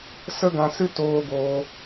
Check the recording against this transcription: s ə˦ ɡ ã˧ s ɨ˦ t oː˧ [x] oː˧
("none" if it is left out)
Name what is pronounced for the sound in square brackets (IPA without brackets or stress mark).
ɡ